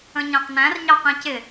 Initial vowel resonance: nasal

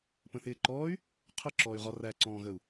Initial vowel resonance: nasal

